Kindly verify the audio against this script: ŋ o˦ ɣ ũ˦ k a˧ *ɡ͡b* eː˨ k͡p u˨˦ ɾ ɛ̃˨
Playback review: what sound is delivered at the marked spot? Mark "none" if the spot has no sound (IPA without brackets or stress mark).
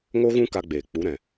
ɡ͡b